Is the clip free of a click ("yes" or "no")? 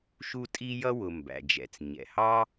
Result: yes